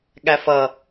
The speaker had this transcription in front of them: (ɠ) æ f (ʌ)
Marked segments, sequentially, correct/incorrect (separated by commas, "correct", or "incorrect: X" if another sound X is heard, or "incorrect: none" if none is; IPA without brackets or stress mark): correct, correct